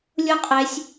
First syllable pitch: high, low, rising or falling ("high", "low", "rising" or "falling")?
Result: high